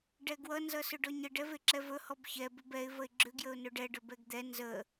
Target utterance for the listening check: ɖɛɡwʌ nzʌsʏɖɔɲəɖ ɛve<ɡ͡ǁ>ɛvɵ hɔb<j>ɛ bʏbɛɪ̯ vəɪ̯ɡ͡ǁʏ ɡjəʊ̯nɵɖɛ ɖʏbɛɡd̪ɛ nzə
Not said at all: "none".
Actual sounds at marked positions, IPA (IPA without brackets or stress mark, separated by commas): ǁ, ç